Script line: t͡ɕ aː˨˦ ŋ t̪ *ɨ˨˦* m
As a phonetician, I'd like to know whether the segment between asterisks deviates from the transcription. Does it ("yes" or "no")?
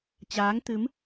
no